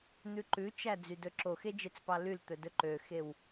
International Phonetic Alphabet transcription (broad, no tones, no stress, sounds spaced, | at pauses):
n̪ ʉ ǃ ʉ t͡ʃ æ d͡z y d ɵ ǁ o x e d͡ʒ e t͡s p ɑ l y l t̪ ɵ d ɵ ǃ ø x e w